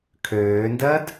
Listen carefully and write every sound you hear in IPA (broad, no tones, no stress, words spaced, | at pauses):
kʰøːndɜd